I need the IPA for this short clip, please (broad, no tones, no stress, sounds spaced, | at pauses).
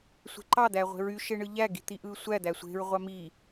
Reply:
sʷ e̤ ǃ ɑ d̪ æ ʁʷ e̤ ɹ y ʃ e ɳ ɯ ʎ æ ɡ i̤ t̪ i ʔ ɯ sʷ æ d̪ æ sʷ e̤ ɹ ʁʷ ɑ m i